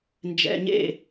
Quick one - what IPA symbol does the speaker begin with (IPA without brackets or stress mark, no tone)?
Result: n